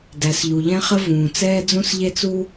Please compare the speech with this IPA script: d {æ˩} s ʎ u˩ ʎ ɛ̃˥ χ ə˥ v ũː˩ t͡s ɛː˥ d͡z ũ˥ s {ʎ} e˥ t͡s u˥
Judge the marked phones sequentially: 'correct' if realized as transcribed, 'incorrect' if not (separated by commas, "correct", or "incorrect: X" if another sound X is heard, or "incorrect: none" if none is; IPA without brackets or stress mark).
correct, correct